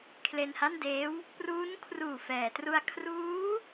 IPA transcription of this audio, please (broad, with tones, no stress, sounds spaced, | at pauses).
kʰ l e˧ n h a˥˩ n d eː˦˥ w | p r uː˦˥ n kʰ r uː˨˩ f ɛː˩˦ t r u˧ a̯ kʰ r uː˦˥